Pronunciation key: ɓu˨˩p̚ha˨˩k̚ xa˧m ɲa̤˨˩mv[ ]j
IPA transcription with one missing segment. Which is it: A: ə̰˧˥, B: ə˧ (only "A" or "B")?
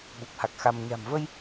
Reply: B